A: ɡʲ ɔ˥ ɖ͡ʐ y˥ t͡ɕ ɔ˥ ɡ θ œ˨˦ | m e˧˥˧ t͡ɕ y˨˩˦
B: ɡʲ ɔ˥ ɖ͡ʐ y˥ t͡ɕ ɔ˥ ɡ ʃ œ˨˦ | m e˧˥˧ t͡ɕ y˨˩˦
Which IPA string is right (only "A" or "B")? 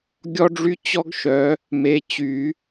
B